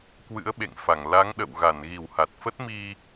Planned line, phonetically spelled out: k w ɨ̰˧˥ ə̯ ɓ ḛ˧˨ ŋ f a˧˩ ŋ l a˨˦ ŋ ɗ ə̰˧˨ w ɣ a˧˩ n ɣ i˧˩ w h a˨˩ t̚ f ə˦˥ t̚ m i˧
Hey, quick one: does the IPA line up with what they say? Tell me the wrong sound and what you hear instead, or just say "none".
none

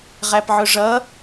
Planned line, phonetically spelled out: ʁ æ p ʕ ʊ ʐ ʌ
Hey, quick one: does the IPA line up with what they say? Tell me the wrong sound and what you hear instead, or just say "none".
none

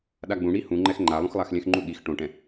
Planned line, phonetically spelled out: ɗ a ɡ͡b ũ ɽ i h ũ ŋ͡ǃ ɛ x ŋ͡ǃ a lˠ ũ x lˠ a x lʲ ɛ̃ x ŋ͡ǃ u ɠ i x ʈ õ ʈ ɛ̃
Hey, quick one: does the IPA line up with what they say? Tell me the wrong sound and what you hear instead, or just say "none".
none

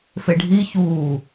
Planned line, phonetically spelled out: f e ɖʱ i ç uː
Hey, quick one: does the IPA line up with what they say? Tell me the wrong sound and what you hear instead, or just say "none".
none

